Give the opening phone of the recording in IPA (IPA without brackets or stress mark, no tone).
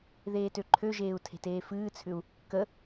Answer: ð